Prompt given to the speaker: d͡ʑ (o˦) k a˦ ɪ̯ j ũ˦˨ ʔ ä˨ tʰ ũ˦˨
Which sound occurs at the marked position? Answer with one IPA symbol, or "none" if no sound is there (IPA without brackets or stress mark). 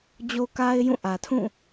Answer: o˦